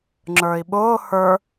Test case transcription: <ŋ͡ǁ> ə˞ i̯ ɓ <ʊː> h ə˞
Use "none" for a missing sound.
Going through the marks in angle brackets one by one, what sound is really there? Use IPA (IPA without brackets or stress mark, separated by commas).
ŋ͡ǁ, ʊː